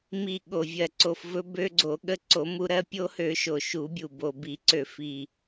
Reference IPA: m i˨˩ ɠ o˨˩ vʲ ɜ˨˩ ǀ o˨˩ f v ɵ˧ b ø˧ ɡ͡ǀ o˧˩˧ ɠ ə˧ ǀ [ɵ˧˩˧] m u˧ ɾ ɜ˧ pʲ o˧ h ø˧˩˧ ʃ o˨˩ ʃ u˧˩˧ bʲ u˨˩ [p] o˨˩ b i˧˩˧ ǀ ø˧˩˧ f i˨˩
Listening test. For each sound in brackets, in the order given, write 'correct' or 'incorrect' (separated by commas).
incorrect, incorrect